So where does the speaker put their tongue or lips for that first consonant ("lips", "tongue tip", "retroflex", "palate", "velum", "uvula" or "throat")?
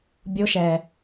lips